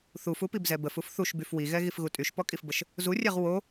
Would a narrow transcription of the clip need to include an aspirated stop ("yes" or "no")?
no